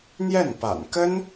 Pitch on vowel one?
falling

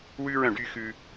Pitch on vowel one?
high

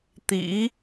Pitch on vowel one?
rising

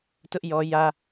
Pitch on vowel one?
high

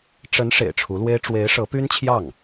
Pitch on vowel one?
rising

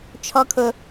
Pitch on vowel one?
low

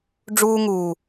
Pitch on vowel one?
high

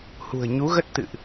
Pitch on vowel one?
low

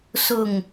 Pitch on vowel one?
falling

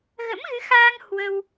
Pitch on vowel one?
rising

